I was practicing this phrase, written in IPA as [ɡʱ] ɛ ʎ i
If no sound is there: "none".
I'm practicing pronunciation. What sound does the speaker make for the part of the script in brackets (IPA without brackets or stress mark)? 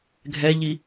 ɡʱ